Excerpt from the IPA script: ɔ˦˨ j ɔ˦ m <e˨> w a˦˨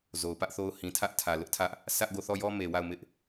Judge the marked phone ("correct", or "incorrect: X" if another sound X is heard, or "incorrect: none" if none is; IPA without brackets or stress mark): correct